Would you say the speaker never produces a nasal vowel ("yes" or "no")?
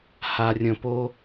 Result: no